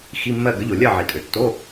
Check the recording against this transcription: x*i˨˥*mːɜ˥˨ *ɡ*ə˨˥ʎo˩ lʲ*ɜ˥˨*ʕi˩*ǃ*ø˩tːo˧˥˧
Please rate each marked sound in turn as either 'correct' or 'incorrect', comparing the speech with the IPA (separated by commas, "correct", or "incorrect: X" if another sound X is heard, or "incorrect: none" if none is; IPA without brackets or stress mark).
incorrect: i˧˥˧, correct, correct, incorrect: tʼ